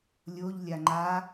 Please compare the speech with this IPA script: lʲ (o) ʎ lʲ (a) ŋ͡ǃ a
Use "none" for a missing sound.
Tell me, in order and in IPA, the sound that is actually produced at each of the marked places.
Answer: o, a

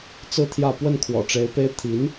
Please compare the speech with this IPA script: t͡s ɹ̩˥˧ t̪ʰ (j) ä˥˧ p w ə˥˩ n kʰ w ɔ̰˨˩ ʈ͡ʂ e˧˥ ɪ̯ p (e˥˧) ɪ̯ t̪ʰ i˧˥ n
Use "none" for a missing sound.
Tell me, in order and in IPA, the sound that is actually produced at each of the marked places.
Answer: j, e˥

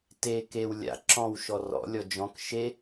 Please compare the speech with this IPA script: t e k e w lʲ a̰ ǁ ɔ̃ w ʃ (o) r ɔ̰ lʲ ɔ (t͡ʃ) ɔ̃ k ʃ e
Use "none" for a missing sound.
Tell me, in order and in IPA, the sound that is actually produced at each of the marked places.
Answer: ɔ, d͡ʒ

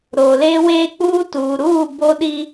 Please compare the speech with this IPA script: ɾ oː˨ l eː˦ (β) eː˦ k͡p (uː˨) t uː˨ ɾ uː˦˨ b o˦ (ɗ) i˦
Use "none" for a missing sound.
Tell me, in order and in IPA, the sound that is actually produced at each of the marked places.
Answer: w, uː˦, ɗ

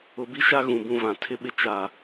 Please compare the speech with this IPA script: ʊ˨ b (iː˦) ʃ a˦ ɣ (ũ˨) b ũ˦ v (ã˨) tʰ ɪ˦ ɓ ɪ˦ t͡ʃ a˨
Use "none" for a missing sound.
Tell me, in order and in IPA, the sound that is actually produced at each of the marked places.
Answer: i˦, ũ˨, ã˨

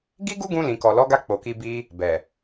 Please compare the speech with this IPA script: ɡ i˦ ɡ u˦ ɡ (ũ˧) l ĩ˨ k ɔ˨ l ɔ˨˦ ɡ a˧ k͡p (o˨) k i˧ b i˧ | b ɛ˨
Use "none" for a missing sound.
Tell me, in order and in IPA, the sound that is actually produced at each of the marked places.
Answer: ũ˧, o˨

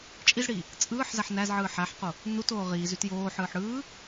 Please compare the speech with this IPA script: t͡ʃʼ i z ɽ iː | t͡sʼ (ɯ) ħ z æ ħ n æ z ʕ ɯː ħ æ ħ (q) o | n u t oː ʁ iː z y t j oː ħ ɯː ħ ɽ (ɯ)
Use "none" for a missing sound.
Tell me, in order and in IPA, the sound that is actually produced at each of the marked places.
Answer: ɯː, q, ɯː

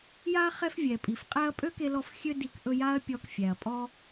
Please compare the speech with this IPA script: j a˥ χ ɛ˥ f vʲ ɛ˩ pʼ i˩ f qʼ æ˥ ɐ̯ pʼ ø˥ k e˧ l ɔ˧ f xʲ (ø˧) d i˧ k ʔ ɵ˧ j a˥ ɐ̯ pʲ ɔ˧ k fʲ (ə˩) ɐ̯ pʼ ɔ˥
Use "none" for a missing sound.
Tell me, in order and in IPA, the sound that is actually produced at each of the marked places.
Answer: ø˥, æ˩

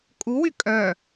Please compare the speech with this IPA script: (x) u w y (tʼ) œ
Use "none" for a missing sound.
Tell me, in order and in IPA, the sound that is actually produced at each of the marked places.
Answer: kʼ, kʼ

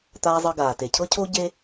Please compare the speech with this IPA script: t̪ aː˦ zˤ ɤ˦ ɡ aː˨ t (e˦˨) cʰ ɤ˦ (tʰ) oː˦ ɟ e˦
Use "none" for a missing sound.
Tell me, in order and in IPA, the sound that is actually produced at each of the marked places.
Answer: e˨, cʰ

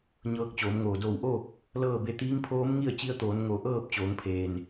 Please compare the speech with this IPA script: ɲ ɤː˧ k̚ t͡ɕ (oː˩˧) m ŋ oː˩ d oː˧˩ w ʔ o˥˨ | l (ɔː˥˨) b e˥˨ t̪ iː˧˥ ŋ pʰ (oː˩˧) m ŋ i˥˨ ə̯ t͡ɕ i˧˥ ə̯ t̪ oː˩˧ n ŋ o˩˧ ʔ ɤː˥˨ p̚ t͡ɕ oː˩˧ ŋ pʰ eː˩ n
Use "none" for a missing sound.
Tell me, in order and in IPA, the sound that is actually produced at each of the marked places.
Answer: oː˩˧, ɤː˥˨, oː˧˥

